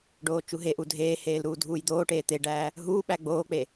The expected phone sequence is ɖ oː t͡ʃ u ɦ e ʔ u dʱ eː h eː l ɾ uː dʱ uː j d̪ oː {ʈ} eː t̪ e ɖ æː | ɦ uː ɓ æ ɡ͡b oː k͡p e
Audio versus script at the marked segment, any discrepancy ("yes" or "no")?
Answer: no